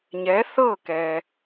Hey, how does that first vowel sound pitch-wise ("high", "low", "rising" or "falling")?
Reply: rising